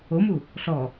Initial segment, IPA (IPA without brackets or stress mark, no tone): o